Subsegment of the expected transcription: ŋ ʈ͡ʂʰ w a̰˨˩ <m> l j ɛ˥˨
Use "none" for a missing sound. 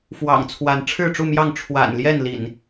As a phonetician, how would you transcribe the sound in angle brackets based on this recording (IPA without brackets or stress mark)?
n